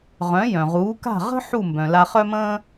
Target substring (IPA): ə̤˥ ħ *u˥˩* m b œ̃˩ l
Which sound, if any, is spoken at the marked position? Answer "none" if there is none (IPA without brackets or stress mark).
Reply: u˥˩